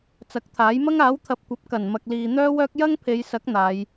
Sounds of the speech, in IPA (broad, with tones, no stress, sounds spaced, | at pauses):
t͡s ɐ˨˥ k̚ t̪ʰ aː˨˥ j m ɐ˥ ŋ aː˨˥ w t̪ʰ ɐ˨ p̚ kʷ ɐ˨˥ p̚ k ɐ˨˩ n m ɐ˨ k̚ l iː˨ n̪ œː˥ w œː˥ k̚ j ɐ˥ ŋ pʰ e˨˧ j s ɐ˨˥ k̚ n̪ aː˨˧ j